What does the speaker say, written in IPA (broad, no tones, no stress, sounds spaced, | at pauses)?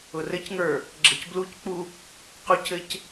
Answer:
ʊ r ɘ c ŋ ə˞ | ɡ͡ǁ ɘ c b l u c k͡p u | q u c ɘ c